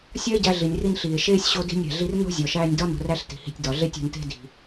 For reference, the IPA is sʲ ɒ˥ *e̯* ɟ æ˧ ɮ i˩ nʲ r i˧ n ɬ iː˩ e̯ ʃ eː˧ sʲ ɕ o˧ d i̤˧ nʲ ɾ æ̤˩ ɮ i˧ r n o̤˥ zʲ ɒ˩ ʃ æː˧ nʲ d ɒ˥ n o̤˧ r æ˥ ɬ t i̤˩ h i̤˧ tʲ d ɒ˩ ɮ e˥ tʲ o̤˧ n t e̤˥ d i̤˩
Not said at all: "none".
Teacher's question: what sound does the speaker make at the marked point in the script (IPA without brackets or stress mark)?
e̯